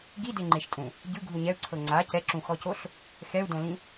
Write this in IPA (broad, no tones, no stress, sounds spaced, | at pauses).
ɡ i d e ŋ͡ǃ e ʃ tʼ ũ | ɟ ɯ ɡʱ u ɲ ɛ u̯ ǀʰ ɤ ŋ͡ǀ a c ɛ ǁ ũ x ɔ c o ɬ | x ɛ u̯ d õ l ĩ